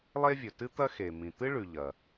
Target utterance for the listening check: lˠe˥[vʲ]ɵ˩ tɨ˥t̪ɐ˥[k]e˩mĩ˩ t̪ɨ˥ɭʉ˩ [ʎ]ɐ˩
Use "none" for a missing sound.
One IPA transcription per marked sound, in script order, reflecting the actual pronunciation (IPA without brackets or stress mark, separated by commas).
vʲ, x, ʎ